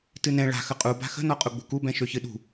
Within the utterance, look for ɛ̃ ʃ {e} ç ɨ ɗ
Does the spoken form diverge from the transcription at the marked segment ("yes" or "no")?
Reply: yes